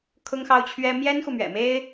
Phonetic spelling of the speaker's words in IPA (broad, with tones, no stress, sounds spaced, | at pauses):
kʰ ʊ˥ ŋ x ɑ˥ ʊ̯ t͡ɕʰ ɥ ɛ˥ m j ɛ˥ n x u˨ m ɥ ɛ̰˨˩ m e˥ ɪ̯